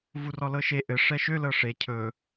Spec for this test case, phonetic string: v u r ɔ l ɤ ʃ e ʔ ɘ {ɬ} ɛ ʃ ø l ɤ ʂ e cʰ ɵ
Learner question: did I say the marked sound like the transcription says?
no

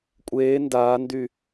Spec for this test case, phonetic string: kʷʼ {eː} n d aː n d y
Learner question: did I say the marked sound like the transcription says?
yes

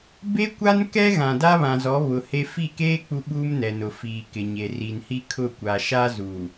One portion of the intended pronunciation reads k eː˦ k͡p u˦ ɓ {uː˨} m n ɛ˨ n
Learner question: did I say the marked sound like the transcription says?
no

